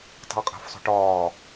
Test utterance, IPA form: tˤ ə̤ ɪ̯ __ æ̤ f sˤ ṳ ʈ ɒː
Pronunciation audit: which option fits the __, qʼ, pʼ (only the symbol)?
qʼ